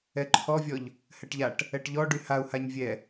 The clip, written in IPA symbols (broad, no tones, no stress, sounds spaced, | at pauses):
ɛ ǃʰ ɔ vʲ ɔ ʎ | h ɛ ʈ ʎ a ʈ | ɛ ʈ ʎ ɔ ɖ y h a u̯ h a ɲ vʲ ɛ